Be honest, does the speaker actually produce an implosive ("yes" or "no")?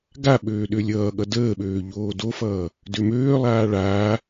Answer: yes